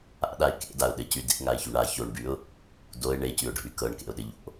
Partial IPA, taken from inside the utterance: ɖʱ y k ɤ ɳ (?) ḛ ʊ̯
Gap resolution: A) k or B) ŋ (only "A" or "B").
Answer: A